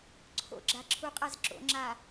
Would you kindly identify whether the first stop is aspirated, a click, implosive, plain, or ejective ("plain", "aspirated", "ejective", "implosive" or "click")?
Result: click